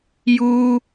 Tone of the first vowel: high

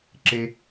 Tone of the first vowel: high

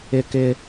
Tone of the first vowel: high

